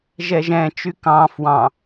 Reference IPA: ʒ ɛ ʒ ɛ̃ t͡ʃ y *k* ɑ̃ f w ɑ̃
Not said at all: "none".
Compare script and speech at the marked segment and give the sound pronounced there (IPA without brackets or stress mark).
k